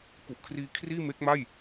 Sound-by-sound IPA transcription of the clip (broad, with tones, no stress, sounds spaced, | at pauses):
k u˨˩ ʔ kʰ r iː˧ kʰ r iː˥˩ m e˦˥ k̚ m a˥˩ j